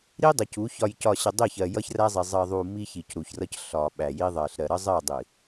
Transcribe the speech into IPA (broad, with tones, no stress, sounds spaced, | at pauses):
ɾ i˦ dˤ ə˨ c u˨˦ ç ɒ˨ j c ɒ˨ ɕ ə˨ dˤ i˦˨ ç ɜ˨ j ʌ˦ ç r æ˦ zˤ i˨ zˤ ɜ˨ ðˤ u˨ m i˦ ç i˨ c ɾ u˨ ç r ʌ˦ c ɬ ɒ˨ ɓ æ˨ j i˦ ðˤ ɜ˨ ɬ ɾ ɜ˨ ɾ ə˦ zˤ ɜ˦˨ dˤ i˨